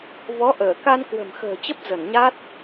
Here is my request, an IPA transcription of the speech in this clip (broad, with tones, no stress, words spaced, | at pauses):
vɔ˨˦ ʔəː˧˩ka˧n kwə̤˨˩mxə̤ː˨˩t͡ɕə˦˥p̚ zə˧˩nɲa˦˥t̚